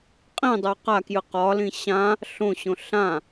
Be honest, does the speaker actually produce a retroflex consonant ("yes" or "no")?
no